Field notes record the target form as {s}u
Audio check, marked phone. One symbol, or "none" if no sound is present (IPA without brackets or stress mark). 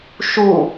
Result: ʃ